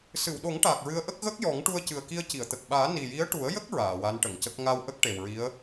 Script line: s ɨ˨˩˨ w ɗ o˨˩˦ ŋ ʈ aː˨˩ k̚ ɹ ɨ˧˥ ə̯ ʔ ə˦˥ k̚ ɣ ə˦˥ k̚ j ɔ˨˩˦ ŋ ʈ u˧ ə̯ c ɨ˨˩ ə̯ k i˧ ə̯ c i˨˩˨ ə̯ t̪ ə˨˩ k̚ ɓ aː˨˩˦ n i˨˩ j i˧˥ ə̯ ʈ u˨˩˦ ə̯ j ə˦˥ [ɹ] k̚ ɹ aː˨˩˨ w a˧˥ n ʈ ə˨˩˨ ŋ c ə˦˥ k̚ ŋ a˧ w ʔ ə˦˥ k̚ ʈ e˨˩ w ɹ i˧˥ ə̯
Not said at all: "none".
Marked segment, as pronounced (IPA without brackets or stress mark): none